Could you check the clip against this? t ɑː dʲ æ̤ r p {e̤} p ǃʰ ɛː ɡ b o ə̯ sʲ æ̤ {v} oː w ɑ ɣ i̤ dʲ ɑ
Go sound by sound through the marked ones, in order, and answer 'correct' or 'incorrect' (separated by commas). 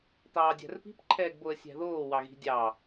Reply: incorrect, incorrect